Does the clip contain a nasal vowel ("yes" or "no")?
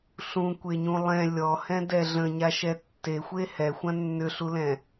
yes